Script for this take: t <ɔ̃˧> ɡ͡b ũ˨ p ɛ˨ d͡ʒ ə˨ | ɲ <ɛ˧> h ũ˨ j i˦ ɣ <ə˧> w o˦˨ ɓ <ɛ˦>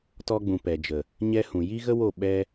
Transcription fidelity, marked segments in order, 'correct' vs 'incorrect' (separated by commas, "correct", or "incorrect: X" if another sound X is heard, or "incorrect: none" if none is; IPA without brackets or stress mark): incorrect: ɔ˧, correct, incorrect: ə˦, correct